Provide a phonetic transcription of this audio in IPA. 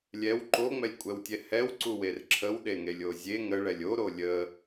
lʲ ɛ w ǃ o ŋ͡m ɛ lʲ kʷʼ ɛ w tʲ ɛ h ɛ w ǀ u w e r ǁʰ ə w ɗ e ŋ e lʲ o zʲ e ŋ ə ɭ ɛ lʲ o ɾ o lʲ ə

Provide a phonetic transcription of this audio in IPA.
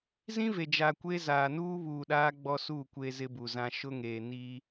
z ĩ˦ v e˨ d͡ʒ a˨ kʷ e˦ z aː˨ n uː˦ β uː˨ ɗ aː˦ ɡ͡b ɔ˦ s u˦˨ kʷ e˦ z ɪ˦ b u˨ z ã˦ ʃ ʊ˦ ŋ e˨ n i˦

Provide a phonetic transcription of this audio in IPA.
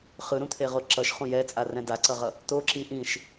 χ ɯ ɾ ũ t̪ʰ e ʁ o ǁ ʌ ʃ χ ũ j ɛ t͡sʼ a r ɛ̃ d a ǀ ʌ ʁ ʌ | t̪ o ǁ i ʔ ĩ ʃ

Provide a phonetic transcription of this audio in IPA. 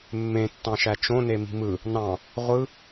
mː ẽ tː ɑ̃ ʃ æ t͡ʃ õ n e m i̤ m ɯ | n ɑ̃ | ʁʷ ɯ

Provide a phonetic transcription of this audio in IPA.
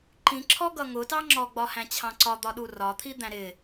ǃ ĩ ǁʰ ɔ ɡ ʌ ŋ ʊ t ɑ ŋ͡ǁ ɔ ɡ͡b ɒ h æ̃ t͡ɕʰ ɑ̃ ǀ ɒ d̪ ɒ ɗ u r ɒ t̪ʰ i d̪ æ̃ ɾ ɪ

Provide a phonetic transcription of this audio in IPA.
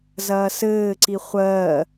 z ɐː s ɘː ǀ i χʷ ɜː

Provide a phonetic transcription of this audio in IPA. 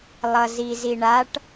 lˠ ʌ z i z i ɳ a ʈ

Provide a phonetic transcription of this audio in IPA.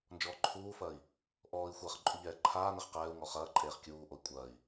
n d͡ʒ ɔː ǃʰ uː f ɐː i̯ | ʔ ɔː i̯ xʷ ɐː χ ǃʼ u ʎ ɛː ǃʰ aː n ɛ χ q ɛː u̯ ŋ ɔ χ ɐː ǃʼ eː χ kʲ uː ʔ o i̯ kʷʼ ɐː i̯

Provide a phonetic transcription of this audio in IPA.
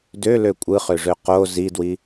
d ø l ø kʷʼ ɯ χ ø ʐ ø q o z i d w i

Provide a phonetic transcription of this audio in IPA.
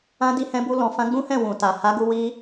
ã˧ d i˧ h ɛ̃˧ b u˧ l ɔ̃˨ f ã˧ ɡ͡b ũ˦ h ɛ̃˦˨ w ũ˨ t a˨ h a˨˦ ɡ u˧ w i˧

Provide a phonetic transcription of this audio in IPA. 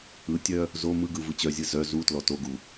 ɯ tʲ œ | z o m ɯ ɡ ɯ v ɯ t͡ɕ œ zʲ ɯ z œ z u t l ɔ t o ɡ u

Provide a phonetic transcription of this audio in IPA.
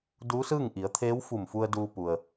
d uː˧˥ s ɯː˥˨ ŋ ʔ i˩˧ ə̯ t̪ʰ eː˧˥ w f u˧˩ m f u˧ ə̯ d uː˧ p u˩ ə̯

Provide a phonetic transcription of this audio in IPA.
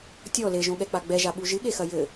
tʲ ɔ l e ʒ õ ɠ ɛ k͡p a ɡ͡b ɛ ʒ a ɓ u ʒ ɨ ɠ e x ɐ j ɘ

